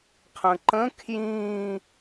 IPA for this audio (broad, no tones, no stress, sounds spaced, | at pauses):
qʰ ə̃ ǃ ə̃ kʰ j ĩ